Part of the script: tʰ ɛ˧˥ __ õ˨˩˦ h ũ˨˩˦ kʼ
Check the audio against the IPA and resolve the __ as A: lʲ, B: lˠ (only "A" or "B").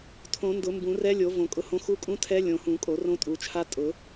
A